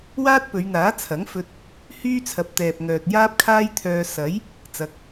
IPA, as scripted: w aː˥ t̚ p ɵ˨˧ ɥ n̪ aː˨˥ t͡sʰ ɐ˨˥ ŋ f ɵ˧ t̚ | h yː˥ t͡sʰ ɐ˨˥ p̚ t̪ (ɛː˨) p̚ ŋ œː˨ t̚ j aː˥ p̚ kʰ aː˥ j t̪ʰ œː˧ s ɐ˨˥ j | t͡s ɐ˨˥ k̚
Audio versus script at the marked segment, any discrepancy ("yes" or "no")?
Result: no